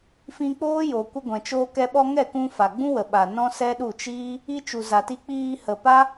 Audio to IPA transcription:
f ĩ˧ k͡p oː˦ j o˨ kʷ ə˧ ɡʷ ɛ̃˨ t͡ʃ oː˧ k ɛ˧ ɓ ɔ˧ ŋ ɛ˦˨ k ũ˧ f a˨ ɡ͡b ũ˦ w ə˨ ɓ a˨ n ɔ̃˦ s ɛ˦ ɗ u˦˨ t͡ʃ iː˦ | i˧ t͡ʃ u˨ z a˨ t i˧ k͡p iː˧ h ə˨ p a˦

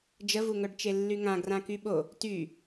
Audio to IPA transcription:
d͡ʒ ə v u ŋ œ ɖ t͡ʃ e lː y ŋ ã ɡ r ã k y ɓ o | t y

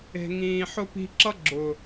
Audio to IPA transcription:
e̤˨ ŋ ĩː˨ ħ ʊ˦ p i̤˧ ǁ ʌ˦ ɡ͡ǁ ʊ˨

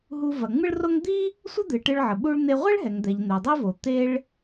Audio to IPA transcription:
ɦ u˧ v ɐ˩ ŋ͡m ɨ˥ ɭ r o˥ ŋ d̪ i˥ | sʷ ə˥ d̪ ɨ˩ ʈ ɨ˧ ɭ ʕ ə˩ ɓ u˧ ɭ n̪ e˧ ʁʷ e˥ ɭ ɦ ɛ˩ ŋ d̪ ɛ˩ ʎ n̪ ɛ˩ dˤ i˥ v o˩ t̪ e˧ ɭ

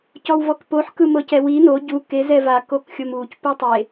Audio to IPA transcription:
c ɔ w v ɔ k p o ħ k ɯ m ɤ c ɛ w i n o ɟ u k e z ɛ v a k o k xʲ o m u c p u tˤ e

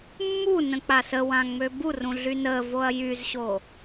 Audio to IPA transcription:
mː u n ə̃ k͡p a s ə w ã ŋ͡m ø b u r ũ ɮ y n ə v o ɐ̯ j y z ɕ o

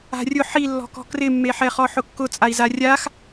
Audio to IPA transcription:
a̤ rʲ ʊ ħ i lː ɔ̤ k ɔ̤ k r ɪ mː e ħ ɛ χ ɔ ħ ʊ kː ʊ t͡sʼ a i̯ z a rʲ a x

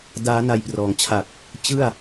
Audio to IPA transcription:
d aː˦˥ n a˧ j p r ɔː˩˦ ŋ t͡ɕʰ a˨˩ k̚ | t͡ɕ ɯ˥˩ a̯

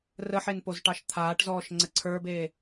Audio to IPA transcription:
r ə ħ e n p o z ʈ ɑ ʃ t̪ʰ aː ʈ z ɔː ʃ ŋ͡ǀ ə ǀʰ ə˞ b eː

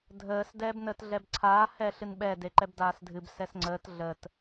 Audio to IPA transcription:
dʱ əː s d ɛː b n əː t ɮ ɛ b ǀʰ aː h ɛ ɬ ɨ n ɓ ɛ d e ǃ ɛ b d aː s dʱ ɨ b s ɛ s ŋ͡ǀ əː t ɮ əː t

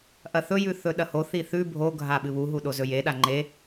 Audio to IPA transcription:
ʔ ɐ θ ɵ j ʉ θ ɵ ɗ ɐ h o θ i θ ʉ bʱ o ɡʱ a ɓ ɨ β u ɦ u ɗ o z ɵ j e ɗ a ŋ͡ǃ e

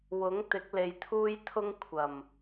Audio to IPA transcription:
w ʊ˨˥ ŋ t̪ ɪ˨˥ k̚ l e˨ j t̪ʰ uː˥ j t̪ʰ ʊ˥ ŋ kʷʰ ɐ˨˩ m

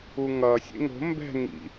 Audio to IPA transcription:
u ŋ ʌ sʲ ḛ ŋ o̤ m b ɛ̤ ŋ ḭ

